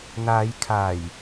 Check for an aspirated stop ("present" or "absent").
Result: present